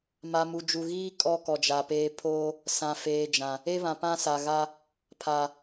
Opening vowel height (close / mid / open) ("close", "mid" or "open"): open